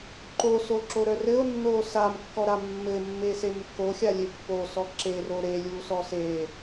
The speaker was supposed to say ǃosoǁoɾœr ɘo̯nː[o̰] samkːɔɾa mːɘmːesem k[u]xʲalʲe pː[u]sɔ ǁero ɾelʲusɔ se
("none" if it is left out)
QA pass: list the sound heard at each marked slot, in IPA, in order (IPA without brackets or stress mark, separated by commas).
o, o, o